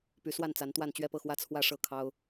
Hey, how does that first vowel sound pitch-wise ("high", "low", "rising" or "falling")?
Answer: rising